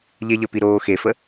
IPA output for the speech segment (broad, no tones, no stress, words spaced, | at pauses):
ʎeʎəpiɾoː xefə